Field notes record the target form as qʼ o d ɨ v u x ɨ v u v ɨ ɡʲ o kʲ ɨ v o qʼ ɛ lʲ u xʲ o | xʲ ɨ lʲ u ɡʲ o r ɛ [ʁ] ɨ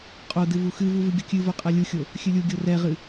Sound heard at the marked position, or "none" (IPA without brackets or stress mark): ʁ